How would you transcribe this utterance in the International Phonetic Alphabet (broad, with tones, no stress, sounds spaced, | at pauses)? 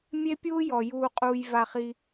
mʲ e˥ pʲ uː˥ j ɔ˩ j uː˧ qʼ uː˧ j v a˧ χ i˧